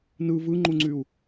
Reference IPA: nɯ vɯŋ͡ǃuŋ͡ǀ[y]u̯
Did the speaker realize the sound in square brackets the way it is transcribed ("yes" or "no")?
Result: yes